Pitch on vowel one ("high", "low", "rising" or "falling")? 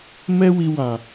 high